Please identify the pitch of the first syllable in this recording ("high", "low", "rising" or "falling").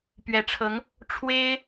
rising